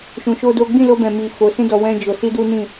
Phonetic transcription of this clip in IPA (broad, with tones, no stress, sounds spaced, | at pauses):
ʃ ũ˧ ʃ o˦ d o˦ ɡ͡b ĩ˦˨ l o˧ b ɛ̃˨ m i˨ f o˨˦ s ĩ˦ d ɔ˧ w ɛ̃˦ d͡ʒ o˧ s i˦ d u˦ n ĩ˦˨